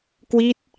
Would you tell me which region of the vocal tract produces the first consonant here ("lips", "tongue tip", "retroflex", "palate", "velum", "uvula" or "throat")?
velum